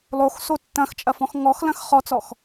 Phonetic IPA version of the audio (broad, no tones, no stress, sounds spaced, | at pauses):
lˠ o x s o tː ɐ̃ x t͡ʃʼ ɐ f ɔ̃ x ŋ ɔ x l ɐ̃ x χ ɔ t͡s ɔ x